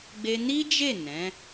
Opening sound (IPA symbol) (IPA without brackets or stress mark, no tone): ɡ͡b